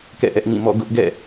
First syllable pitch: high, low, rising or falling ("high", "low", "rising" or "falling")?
falling